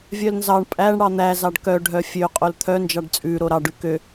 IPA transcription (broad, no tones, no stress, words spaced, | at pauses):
vʲœlnzɑɳ pʼæɳ ɽɑn̪æ zɑɖkœ ɖʱœfʲø qʼolt̪ʰœ nd͡ʒɑɖt͡sʼʉ ɾoɾɑ ɖʉkø